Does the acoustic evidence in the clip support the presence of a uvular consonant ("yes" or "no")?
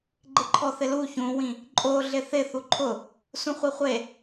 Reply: yes